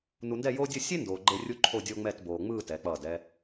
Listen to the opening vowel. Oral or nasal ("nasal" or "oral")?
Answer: oral